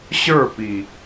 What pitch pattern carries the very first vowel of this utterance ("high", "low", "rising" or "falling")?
falling